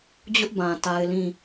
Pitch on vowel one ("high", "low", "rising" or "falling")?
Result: high